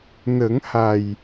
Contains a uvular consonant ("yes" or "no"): no